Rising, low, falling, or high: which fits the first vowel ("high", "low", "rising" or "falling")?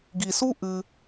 low